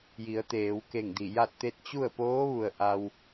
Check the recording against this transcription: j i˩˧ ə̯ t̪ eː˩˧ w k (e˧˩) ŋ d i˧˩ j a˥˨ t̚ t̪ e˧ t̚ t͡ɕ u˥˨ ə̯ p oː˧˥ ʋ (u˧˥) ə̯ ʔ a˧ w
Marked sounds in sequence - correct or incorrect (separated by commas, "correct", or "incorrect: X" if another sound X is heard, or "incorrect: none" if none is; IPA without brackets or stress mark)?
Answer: correct, incorrect: u˩